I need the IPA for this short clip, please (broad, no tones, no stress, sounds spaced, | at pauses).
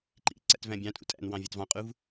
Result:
ǃ ḭ ǀ æ̰ t v æ̃ bʲ ɑ̃ tʼ ṵ tʼ æ̰ n w ɑ̃ vʲ ɑ t v ɑ̃ qʼ u v